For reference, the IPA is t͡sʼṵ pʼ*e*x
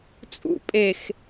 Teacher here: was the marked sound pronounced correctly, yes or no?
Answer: yes